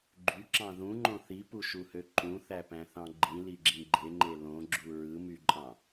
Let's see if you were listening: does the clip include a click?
yes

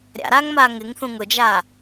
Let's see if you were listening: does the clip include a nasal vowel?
yes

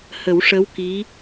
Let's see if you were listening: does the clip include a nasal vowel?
no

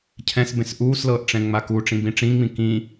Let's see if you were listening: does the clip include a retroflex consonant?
yes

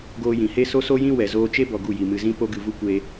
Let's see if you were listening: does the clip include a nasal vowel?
yes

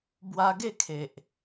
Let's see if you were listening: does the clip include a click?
no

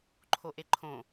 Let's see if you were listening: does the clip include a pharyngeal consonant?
no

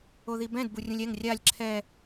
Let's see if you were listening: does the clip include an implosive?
no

